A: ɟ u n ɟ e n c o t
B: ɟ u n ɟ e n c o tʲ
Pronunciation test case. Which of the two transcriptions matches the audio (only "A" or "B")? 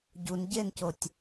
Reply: B